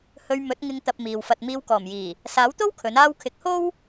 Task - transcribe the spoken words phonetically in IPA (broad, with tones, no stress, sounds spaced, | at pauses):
h ɵ˧ ɥ m ɵ˨˥ t̚ ŋ ɪ˧ ŋ t̪ ɐ˧ p̚ m iː˨ w f ɐ˧ t̚ m iː˧ w k ɔː˨˩ m j iː˨˩ | s aː˨˥ w t̪ o˥ w kʰ ɵ˨˥ n aː˥ w kʰ ɪ˨˥ k̚ h o˥ w